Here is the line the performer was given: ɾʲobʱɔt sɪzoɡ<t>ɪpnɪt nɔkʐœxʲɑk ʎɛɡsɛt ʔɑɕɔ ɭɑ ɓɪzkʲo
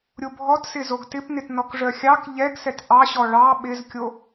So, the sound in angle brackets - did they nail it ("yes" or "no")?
yes